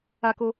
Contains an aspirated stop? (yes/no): no